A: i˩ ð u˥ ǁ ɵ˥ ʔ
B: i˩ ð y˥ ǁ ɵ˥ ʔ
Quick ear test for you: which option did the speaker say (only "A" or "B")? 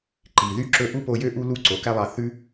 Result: B